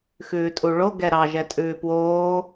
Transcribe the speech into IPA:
xʉːtʼuɭo ɡɛɾɑ ʒɛtʼʉːpwoː

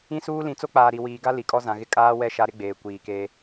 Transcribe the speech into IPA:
ĩ˦suː˦ lĩ˨t͡so˦k͡paː˨ ɾi˨wiː˨ɡa˦ li˨kʼɔ˦zã˨ɣɪ˦ kʼaː˦wɛ˦ ʃa˦ɾɪ˦ɡ͡beː˨ kʷiː˨ke˦

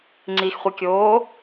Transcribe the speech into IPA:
ŋ͡ǀixχʷikʲoː

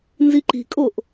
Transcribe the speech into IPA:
nziǃi̤kʼoʔ

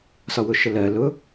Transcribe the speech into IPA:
sɒwʊʃəlɜ lʊ

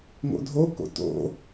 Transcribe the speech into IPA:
ŋo̰dʱoko̰ to̰

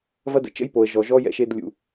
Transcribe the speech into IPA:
vɐ˦də̰˨ t͡ʃə̰˦jpo˨ə̯ʒɔ˨ʒɔ˦ jɛ̰˦ʃe˦d lʲṵ˦

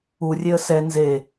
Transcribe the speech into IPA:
urʲeə̯ sɛ nze

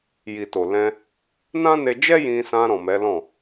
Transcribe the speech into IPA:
ji˨to˨lɛ̃˧ | nã˦ne˧d͡ʒɛ˦ jĩ˧sã˧ ɾɔ̃˨mɛ˨˦lɔ̃˦˨

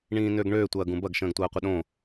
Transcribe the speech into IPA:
ɳĩːnøɡɳøː tʷɐːɡũbɐɡ ʃə̃ːɡtʷɐːqʷɪɗõ

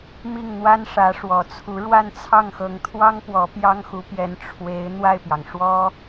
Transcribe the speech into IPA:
mi˥˩ŋn̪wa˥n ʂä˧˥ʂwɔ˨˩t͡sʰu˧˥ ɻwa˥˧nt͡sʰɑ˥˩ŋxɤ˧˥ŋt̪ʰwɑ˥ŋ pwɔ˧˥pjɑ˥ŋxu˧˥pjɛ˧˥n ʈ͡ʂʰwe˧˥ɪ̯ n̪wa˥˩ɪ̯pjɑ˩ŋʂwɔ˥

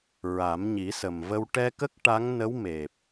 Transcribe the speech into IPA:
ɹa˨˩˦mɲi˨˩˦sə˨˩mvə˧w ʈɛ˧kə˦˥k̚ ʈa˧˥ŋnə˧˥w me˨˩p̚

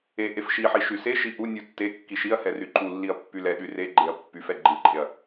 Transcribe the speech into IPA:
e ʔefʃiħi ʃyseʃi ʔunʲu tːe kːiʃiɐ̯hɛ ryǃulːiɐ̯ pːylɛɗy reɡ͡ǃeɐ̯ pːyfɛ ɡ͡ǃilǃʼeɐ̯

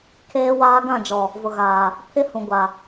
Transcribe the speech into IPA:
kʰeː˦waː˦ ɡã˦˨d͡ʒɔ˨ | vʊ˨ɣaː˨ | pʰɪ˦hũ˨ ɡʷa˨

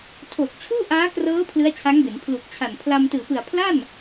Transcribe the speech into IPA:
tʰoː˨˩k̚t͡ɕʰuː˥˩ʔaː˦˥krɤː˦˥ pʰlɯ˦˥a̯t͡ɕʰa˦˥ŋbe˩˦n pʰlu˨˩k̚t͡ɕʰa˨˩n pʰla˧mtɯː˨˩pɯ˨˩a̯ pʰla˥˩n

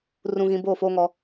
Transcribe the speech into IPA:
rũ˨ɣĩ˨ boː˦˨foː˦ŋɔ˦

